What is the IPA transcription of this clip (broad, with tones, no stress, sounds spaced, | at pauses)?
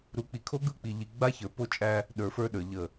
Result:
ɾ u˨ k͡p i˨ kʰ o˦ ɡ ɯ˦˨ k͡p i˨ ʎ i˨ ɡ͡b a˦ ç ə˞˨ p o˦ t͡ʃʼ æ˦ | ɗ ə˞˨˦ f ə˞˦ ɗ ə˞˨ ʎ ə˦˨